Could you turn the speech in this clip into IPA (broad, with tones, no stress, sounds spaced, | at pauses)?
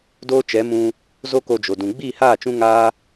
d oː˦ t͡ʃ ɛ˨˦ m ũ˧ | z o˦ k o˧ d͡ʒ o˨ d ũ˨ ɡ͡b iː˦˨ h aː˦˨ t͡ʃ ũ˧ ŋ aː˧